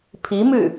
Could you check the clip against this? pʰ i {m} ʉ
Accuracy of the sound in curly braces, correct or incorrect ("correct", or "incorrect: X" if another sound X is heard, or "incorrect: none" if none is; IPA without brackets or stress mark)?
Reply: correct